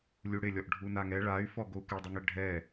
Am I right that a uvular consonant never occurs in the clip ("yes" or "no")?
yes